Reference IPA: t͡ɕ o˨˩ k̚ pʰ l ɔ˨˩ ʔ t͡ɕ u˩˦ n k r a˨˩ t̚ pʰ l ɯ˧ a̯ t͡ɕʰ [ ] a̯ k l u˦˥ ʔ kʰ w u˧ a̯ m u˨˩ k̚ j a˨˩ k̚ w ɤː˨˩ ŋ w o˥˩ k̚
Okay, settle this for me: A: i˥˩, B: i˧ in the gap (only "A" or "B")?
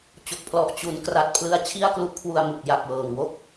A